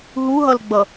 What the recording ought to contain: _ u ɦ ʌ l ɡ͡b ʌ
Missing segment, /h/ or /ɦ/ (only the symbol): ɦ